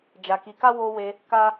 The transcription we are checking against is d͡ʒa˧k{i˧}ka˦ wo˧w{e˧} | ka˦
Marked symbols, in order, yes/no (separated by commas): yes, yes